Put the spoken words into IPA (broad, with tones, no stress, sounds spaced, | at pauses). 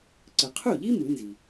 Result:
ǀ ɯ˩ qʰ u˥˩ ʎ i˥ m ɯ˩˥ n z i˩